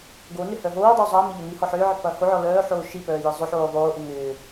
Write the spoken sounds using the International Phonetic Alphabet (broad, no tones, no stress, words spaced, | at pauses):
ɡonʏ hœɦoːdˤo zˤɐːmɪ ʎɐnihɔ ħʏːʕɪ pɐːhoʕɔ lœːħoː ʃipœː jɪzˤʏħoː ðˤoːʔʏ ŋʏː